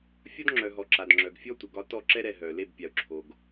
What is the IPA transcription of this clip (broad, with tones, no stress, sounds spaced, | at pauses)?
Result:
fʲ ɒ˦ d ŋ͡ǁ œ˨ ɦ ɔ˨ ǁ a˨ d ŋ͡ǁ œ˨ ɡ fʲ ɔ˦ tʷ ə˨ ɡ ɒ˧ t ɔ˦˨ ǁ ɛ˦ ɾ ɛ˨ ɦ œ˨ l e˦˨ b pʲ a˨ ʊ̯ ǁʰ o˨ ɡ